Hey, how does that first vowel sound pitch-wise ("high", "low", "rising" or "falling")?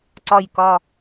falling